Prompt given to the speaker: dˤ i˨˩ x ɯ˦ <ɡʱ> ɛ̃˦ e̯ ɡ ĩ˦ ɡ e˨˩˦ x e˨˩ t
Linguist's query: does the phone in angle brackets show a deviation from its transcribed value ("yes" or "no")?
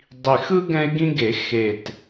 yes